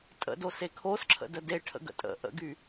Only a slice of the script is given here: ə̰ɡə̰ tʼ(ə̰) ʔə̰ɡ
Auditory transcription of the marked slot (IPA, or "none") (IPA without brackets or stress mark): ə̰